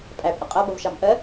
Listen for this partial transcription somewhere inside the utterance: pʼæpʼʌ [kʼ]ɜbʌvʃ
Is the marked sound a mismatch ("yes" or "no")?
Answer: yes